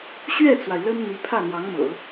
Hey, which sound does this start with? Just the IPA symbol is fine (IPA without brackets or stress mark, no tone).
ɕ